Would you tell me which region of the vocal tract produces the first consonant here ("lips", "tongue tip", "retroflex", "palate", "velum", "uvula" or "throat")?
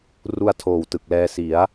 tongue tip